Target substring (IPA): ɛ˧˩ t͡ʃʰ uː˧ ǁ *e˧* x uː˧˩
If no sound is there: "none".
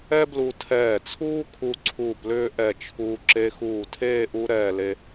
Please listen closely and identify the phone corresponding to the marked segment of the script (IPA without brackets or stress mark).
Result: e˧